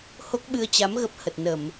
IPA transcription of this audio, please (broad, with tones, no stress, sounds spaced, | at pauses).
h o˦˥ k̚ ɓ ɨ˧ ə̯ t͡ɕ a˨˦ m ɣ ə˦˥ p̚ h ə˨˩ t̚ n ə˧˩˨ m